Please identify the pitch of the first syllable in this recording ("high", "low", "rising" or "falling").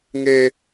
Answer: high